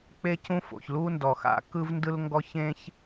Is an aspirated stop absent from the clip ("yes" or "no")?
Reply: yes